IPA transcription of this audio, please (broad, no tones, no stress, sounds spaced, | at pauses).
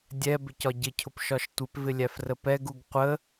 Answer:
dʲ ɛ b ɪ c ɒ ɟ ɪ cʰ ʊ p ʃ ɒ ʃ tʷ ɪ p v ɪ lʲ æ f r ə p ɛ ɡ u ɡ qʷ ə